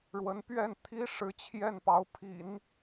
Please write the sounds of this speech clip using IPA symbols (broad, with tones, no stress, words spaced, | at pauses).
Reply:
ɻwə˧˥npɥɛ˥˩n t̪ʰi˥ʂɻ̩˧˥ t͡ɕʰjɛ˥˩npɑ˧˥ʊ̯pʰḭ˨˩˦n